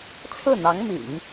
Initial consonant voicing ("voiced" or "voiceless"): voiceless